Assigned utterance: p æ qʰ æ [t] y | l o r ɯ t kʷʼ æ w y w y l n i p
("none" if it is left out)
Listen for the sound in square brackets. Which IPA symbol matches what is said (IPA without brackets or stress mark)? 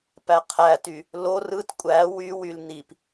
t